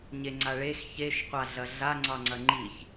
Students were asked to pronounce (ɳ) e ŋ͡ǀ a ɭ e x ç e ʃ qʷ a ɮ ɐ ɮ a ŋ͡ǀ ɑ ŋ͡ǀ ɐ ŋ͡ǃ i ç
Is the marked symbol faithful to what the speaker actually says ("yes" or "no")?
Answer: no